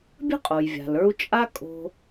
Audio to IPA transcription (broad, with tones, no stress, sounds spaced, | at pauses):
bʲ ə̤˥ qʼ o˩ j vʲ a̤˩ l ə˞˧ u̯ t͡ʃʼ a˥ kʼ o̤˧